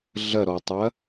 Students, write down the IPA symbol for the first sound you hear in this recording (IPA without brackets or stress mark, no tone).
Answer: ɮ